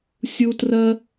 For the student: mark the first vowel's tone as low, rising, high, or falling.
high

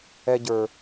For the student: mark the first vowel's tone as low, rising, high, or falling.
high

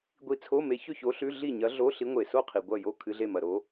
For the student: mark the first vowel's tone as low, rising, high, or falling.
rising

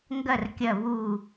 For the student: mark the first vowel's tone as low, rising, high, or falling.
falling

